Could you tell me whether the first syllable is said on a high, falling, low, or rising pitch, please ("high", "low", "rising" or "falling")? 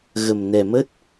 low